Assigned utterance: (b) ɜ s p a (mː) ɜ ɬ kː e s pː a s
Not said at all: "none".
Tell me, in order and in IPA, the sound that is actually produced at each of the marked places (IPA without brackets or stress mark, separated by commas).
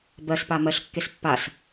b, m